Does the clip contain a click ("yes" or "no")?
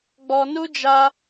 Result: no